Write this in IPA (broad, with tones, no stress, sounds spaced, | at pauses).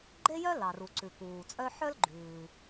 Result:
ɡ͡ǃ e˥ j œ˥ l ɑ˩ r u˩ ǀ ʉ˩ k uː˩ t͡sʼ œ˥ ħ œ˥ l ɡ͡ǃ ʉː˩